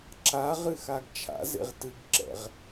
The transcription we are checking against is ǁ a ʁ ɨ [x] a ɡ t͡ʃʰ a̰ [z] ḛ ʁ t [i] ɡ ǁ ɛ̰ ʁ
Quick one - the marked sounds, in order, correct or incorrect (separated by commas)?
correct, correct, incorrect